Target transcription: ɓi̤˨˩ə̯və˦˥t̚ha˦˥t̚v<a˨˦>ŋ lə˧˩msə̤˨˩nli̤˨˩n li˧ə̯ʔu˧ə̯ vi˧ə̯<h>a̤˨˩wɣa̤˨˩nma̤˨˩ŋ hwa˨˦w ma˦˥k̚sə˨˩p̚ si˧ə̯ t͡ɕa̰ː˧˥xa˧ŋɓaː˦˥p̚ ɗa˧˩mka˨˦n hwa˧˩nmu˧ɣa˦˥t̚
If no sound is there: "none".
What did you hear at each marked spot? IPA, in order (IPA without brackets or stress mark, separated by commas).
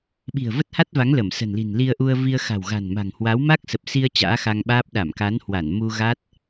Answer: a˨˦, x